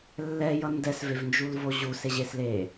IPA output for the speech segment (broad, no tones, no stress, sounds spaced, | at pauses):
lː ɛ j ʌ n d ɛ s v e v n d͡ʒ u l v o ʑ u s e ʑ e s l e